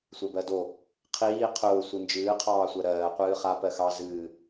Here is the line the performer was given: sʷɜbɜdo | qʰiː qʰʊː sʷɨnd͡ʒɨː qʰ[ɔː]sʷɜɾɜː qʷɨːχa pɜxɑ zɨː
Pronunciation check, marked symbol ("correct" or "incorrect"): incorrect